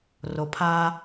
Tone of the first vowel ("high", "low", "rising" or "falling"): low